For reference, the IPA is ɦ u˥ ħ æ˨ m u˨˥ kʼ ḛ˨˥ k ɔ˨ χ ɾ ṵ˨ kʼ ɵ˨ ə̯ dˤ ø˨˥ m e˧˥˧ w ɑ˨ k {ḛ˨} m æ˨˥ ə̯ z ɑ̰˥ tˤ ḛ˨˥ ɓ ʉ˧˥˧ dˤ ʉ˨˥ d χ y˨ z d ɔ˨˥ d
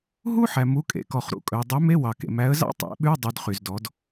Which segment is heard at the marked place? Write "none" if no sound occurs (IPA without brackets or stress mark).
ḛ˨